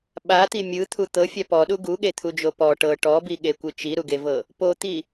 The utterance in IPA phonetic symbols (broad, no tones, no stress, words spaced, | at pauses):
ɓat̪i mʲɯt̪ʰu t̪ɤfʲa pɔɗu ɡuɠet̪ʰud͡ʒo pɔ ʈɤ ʈɔbiɠekʷɯ t͡ʃiɾuɡevɤ | pot̪i